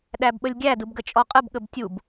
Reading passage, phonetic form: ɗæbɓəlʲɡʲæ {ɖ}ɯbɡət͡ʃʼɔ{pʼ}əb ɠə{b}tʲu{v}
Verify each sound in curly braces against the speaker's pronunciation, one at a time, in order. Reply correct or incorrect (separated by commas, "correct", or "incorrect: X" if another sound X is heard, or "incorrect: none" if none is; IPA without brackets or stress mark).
incorrect: d, incorrect: qʼ, correct, incorrect: b